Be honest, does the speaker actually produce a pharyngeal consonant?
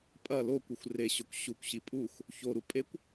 no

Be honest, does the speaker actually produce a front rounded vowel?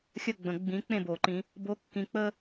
no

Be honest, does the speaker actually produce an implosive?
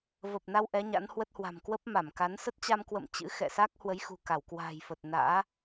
no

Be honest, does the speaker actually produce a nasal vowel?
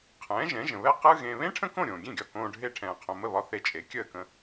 yes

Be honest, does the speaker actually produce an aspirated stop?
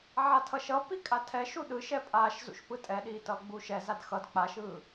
yes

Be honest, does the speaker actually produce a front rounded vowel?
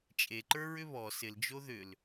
yes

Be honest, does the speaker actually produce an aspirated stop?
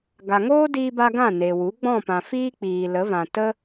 no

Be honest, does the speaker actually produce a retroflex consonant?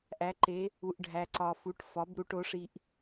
yes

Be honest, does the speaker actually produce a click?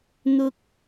no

